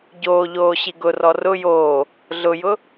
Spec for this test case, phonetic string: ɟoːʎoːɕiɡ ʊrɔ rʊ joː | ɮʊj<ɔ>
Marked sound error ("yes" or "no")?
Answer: yes